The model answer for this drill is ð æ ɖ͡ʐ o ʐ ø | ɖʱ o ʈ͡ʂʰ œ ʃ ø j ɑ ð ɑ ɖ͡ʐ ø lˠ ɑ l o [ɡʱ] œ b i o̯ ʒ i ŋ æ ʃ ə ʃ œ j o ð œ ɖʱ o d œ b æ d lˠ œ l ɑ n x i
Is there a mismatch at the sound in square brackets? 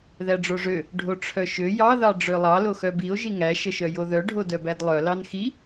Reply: yes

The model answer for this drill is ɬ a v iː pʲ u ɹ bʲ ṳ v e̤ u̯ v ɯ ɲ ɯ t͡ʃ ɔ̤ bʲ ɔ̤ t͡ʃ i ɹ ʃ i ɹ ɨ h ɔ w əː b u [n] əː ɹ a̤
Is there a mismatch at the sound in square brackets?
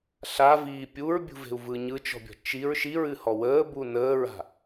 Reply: no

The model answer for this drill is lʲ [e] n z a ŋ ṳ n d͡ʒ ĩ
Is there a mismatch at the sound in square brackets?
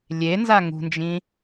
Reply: no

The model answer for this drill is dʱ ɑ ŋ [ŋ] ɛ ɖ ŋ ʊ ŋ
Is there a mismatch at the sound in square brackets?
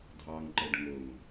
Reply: yes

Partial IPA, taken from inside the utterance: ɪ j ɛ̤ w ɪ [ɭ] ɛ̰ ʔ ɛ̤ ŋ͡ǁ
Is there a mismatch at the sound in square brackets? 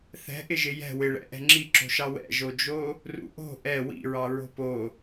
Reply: no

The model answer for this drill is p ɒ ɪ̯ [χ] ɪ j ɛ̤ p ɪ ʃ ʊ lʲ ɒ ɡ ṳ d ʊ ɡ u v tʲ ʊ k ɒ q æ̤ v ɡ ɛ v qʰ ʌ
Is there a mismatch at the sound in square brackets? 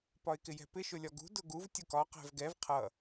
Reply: yes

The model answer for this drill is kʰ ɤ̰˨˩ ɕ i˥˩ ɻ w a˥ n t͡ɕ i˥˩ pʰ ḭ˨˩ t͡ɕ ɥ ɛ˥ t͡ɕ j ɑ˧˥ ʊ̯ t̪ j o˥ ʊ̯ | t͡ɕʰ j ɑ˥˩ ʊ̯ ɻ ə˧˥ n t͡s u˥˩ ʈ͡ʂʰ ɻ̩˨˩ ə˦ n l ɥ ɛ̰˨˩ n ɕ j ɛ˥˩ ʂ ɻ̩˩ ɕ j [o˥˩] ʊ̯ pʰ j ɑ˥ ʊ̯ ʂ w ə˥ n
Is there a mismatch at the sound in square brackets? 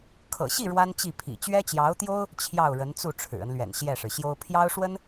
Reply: yes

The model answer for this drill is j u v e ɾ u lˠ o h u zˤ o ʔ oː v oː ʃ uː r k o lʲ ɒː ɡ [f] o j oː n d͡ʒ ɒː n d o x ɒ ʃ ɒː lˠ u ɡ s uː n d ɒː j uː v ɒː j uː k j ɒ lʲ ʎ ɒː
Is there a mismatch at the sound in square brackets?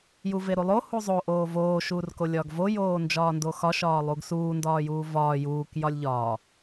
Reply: yes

